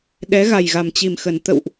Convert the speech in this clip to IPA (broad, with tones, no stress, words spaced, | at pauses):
ɗɛ˨˦ɣa˨˩jɣa˨˩m t͡ɕi˨˩mxə˨˩n t̪ə̰˧˨wʔ